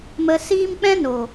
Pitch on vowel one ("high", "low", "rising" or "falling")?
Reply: low